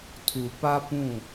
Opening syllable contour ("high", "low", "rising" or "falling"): low